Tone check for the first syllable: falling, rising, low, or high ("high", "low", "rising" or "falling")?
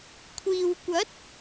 low